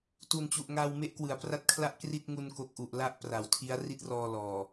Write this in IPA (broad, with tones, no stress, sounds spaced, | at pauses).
t u˨˩ n t͡ɕ u˨˩ ʔ ŋ a˧ w m e˦˥ ʔ k w ɯ˩˦ a̯ p r a˥˩ t̚ kʰ l a˥˩ ʔ k r i˥˩ t̚ ŋ u˧ n k o˨˩ k̚ ʔ u˨˩ ʔ l a˦˥ ʔ p r a˩˦ w tʰ i˦˥ a̯ r i˦˥ t̚ r ɔː˧ l ɔː˨˩